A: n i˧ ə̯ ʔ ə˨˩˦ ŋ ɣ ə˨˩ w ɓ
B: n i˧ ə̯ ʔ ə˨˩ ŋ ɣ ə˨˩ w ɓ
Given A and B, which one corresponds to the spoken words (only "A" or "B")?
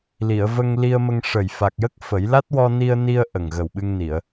B